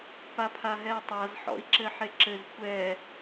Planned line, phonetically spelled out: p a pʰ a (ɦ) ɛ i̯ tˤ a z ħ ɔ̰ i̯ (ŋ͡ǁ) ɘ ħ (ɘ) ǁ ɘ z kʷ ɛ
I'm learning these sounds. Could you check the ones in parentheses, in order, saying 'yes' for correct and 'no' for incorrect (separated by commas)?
yes, no, no